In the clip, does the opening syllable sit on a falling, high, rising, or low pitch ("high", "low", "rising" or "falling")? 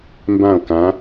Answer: falling